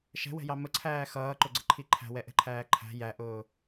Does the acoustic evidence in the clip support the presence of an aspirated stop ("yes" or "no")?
yes